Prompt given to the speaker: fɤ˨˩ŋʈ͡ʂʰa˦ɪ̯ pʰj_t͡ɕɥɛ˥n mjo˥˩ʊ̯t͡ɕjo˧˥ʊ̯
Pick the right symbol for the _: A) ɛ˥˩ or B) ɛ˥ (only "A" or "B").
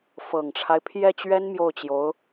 A